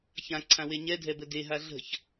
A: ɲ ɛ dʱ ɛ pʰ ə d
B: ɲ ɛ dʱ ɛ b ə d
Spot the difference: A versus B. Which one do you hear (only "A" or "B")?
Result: B